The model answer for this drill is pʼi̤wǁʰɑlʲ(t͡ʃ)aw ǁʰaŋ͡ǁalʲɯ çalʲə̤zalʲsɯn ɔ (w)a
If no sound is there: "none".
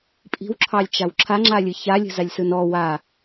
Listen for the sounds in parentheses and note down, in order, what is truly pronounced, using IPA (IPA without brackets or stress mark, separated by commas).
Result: t͡ʃ, w